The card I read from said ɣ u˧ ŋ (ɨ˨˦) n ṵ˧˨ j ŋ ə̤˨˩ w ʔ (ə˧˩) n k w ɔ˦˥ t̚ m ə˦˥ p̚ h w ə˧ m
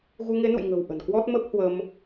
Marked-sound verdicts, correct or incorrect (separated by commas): incorrect, incorrect